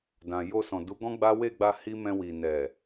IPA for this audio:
d ã˨ j o˧ s ɔ̃˨ d u˨˦ ɡ ɔ̃˦ ɡ͡b a˦ w e˦˨ ɡ͡b a˧ h i˦ m ɛ̃˧ w i˨ n ɛ˨

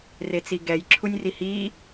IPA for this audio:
r e t͡s i ɡ ɛ j ǁʰ u nʲ r i h i

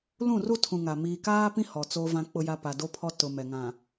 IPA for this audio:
l ũ˦˨ r u˦ tʰ ũ˨ ŋ a˨ m iː˨ k aː˦ p ĩ˦ h ɔ˨ t͡s o˦ v ã˦ k͡p ʊ˦ j a˦ p a˨ d o˦ pʰ ɔ˦ t ʊ˨ m ɛ˨ ŋ ã˨

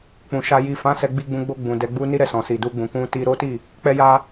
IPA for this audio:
k͡p ũ˨ ʃ a˧ j i˨ f ã˨˦ s ɛ˧ ɡ͡b i˧ ɡ͡b ũ˧ ɡ͡b o˧ ɡ͡b ũ˨ d ɛ˧ ɡ͡b u˦ n i˦ ɾ ɛ˧ s ɔ̃˨ s i˨ d u˧ ɡ͡b ũ˨ k ũ˧ t i˧ ɾ o˦ t i˦˨ | k͡p ɛ˧ j a˧

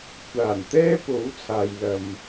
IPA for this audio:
kʷʰ aː˨˩ n t̪ ɛː˥ p o˨˥ w t͡sʰ aː˨ j l ɐ˨ m

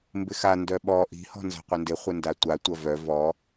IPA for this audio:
m b ɪ x a n d œ ɓ ɔ ʔ i̤ h ɔ̤ n z a̤ qʷ ɪ n d ɪ χʷ ɪ n d a tʷ a tʷ ɐ v œ v ɔ

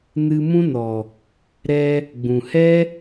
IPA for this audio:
n ɨ˧ m ũ˦ n ɔ˨ | ɾ ɛ˧ | ɡ͡b ũ˨ h ɛ˦

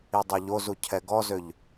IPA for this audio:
i dˤ o ʎ o z u cʰ ɛ ɡ ɔ z ø ʎ

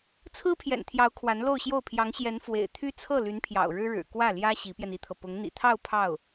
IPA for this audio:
t͡sʰ ɹ̩˥ pʰ j ɛ̰˨˩ n t̪ʰ j ɑ˧˥ ʊ̯ kʰ w a˧˥ n l o˥˧ ʊ̯ ɕ j o˥˩ ʊ̯ pʰ j ɑ˧˥ ŋ ɕ j ɛ˧˥ n f w ḛ˨˩ ɪ̯ t̪ʰ y˥ t͡sʰ ɤ˥˩ l y˧˥ n pʰ j ɑ̰˨˩ ʊ̯ ɻ ɻ̩˥ ɻ ɻ̩˨˩ k w ä˥˩ l j ä˥ ɕ i˧˥ p j ɛ˧ n i˥ t̪ʰ ɤ˨ p ʊ˧˥ ŋ n̪ ḭ˨˩ t̪ʰ ɑ˥˧ ʊ̯ pʰ ɑ˥˩ ʊ̯

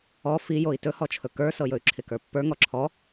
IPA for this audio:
ɔ f i j o i̯ t ɵ h ɔ t͡ʃʰ ɵ k ə˞ s ɤ j ɵ y̯ ǁʰ ɪ k ə˞ pː ə˞ ŋ ɔ ǁʰ ɔ

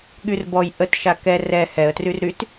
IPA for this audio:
ɠ y r b ɔ j ʔ ə t ʃ a k ɛ r ɛ h ɛ ə̯ t r y r ɾ y t

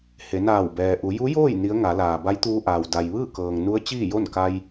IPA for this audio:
h e˩˧ n aː˧˩ w b ɛː˩ ʔ u˩˧ j u˧˥ j oː˥˨ j n i˧˥ ə̯ ŋ a˩˧ l aː˩ b a˧˥ j t̪ uː˧ ʔ aː˩ w d a˩ j ʋ ɯː˥˨ k ɤː˩ ŋ n u˧˥ ə̯ t͡ɕ iː˥˨ j o˥˨ n k a˧ j

